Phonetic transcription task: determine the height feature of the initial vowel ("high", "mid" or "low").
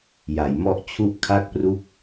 low